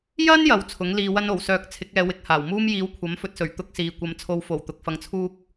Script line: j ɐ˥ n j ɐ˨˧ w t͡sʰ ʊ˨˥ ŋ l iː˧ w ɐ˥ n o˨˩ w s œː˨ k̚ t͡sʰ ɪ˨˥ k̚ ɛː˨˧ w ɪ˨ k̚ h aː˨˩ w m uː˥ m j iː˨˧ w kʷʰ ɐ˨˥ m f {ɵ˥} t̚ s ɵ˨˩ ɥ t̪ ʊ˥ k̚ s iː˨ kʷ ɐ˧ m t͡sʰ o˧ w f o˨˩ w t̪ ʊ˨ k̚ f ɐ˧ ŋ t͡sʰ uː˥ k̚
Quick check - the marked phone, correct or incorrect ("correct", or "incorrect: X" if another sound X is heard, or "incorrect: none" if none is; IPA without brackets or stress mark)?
incorrect: ɵ˧